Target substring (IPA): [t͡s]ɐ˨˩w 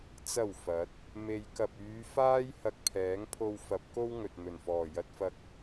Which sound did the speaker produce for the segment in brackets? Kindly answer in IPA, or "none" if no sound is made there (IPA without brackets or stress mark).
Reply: t͡s